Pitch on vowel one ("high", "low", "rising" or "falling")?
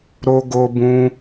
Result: high